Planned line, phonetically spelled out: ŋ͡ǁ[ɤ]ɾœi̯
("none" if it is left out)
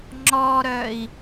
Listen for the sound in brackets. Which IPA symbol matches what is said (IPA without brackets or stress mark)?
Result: ɔ